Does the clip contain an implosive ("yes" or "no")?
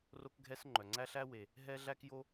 no